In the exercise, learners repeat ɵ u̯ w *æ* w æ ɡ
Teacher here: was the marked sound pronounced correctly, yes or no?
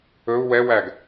no